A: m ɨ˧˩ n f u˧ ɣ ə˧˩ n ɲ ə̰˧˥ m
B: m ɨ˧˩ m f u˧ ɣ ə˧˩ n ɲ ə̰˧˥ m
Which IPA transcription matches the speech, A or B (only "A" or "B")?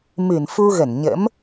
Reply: A